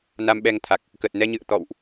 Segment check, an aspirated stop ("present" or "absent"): present